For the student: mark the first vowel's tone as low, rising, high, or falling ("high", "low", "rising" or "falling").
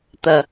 low